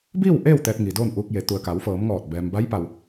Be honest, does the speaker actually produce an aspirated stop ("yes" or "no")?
no